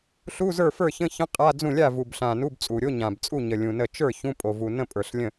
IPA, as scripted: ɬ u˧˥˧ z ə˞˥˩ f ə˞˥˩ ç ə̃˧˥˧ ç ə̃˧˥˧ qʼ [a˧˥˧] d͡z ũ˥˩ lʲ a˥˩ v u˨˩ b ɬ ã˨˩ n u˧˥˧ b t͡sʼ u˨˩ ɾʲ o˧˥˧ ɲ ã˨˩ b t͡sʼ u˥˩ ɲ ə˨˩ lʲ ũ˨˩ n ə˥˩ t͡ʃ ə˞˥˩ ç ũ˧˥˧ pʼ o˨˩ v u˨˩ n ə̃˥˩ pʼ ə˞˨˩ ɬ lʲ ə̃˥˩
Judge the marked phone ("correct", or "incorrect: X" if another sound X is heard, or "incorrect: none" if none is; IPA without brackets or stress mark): correct